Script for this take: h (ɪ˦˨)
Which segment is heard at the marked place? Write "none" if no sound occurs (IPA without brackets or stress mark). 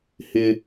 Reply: ɪ˦